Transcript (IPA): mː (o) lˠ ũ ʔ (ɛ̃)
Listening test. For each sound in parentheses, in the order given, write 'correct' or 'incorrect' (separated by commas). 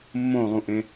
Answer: incorrect, incorrect